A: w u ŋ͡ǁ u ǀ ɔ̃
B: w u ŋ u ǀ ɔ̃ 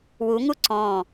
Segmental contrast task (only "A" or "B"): B